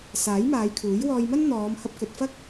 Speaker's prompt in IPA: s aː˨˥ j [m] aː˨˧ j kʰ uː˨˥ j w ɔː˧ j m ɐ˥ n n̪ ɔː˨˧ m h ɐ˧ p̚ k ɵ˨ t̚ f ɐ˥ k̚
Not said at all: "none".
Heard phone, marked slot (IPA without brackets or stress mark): m